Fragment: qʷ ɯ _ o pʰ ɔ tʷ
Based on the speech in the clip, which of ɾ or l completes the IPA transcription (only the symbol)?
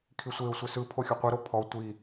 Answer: ɾ